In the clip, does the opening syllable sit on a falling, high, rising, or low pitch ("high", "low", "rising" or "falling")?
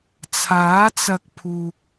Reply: rising